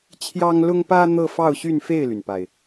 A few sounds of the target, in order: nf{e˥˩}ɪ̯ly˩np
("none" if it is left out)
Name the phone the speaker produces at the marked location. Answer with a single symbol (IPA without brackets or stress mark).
e˥˩